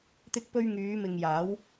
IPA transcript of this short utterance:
t̪ ɪ˧ k̚ p ɵ˧ ɥ ŋ yː˨˧ m ɪ˨ ŋ j aː˨˥ w

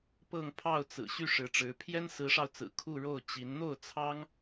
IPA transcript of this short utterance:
p ɤ˥˧ ŋ pʰ ɑ˥˩ ʊ̯ t͡s ɹ̩˨˩ ɕ y˥˩ ʂ ɻ̩˧˥ ʈ͡ʂ ɻ̩˧˥ pʰ j ɛ˥ n s ɹ̩˧˥ ʂ ɑ˧ ʊ̯ t͡s ɹ̩˨˩ kʰ u˥˧ ɻ o˥˩ ʊ̯ t͡ɕ i˧˥ n n̪ o˥˩ ʊ̯ t͡sʰ ɑ˥ ŋ

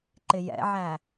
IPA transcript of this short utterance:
ǃ ɪ j ɛ̰ ʕ æ

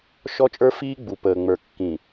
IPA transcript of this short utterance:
ʃ ɔ˦ t͡ʃʼ ə˞˦ f iː˦ ɡ͡b u˨ p əː˨ ŋ͡m ə˞˨ kː ĩ˨

